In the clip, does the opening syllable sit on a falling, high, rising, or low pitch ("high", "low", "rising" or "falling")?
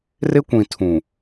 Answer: high